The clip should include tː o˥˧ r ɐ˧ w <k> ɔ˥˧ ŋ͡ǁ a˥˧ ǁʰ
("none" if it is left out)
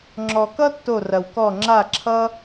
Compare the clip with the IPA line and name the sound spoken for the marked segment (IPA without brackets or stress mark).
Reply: k